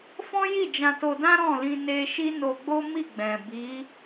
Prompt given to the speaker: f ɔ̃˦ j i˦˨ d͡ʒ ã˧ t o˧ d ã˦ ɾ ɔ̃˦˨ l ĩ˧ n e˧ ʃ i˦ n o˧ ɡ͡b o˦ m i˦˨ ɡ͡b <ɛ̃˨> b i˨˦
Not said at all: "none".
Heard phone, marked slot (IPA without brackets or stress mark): ɛ̃˨